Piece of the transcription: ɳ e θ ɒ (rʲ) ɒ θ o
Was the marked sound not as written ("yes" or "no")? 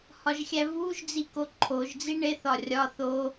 no